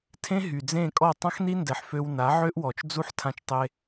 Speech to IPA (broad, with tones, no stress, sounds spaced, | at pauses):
tʰ ẽ˦ ɦ y˨ d͡z ẽ˦˨ kʼ ɔ˦˨ tˤ ã˦ x n i˦ n d ɛ˨ ħ f ø˧ w n a˨˦ ʕ ø˦ ʔ w ɔ˨ t͡ʃ d͡z u˦ ħ tʰ ã˧ t͡ʃ tˤ e˧